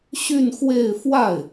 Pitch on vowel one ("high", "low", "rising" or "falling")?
falling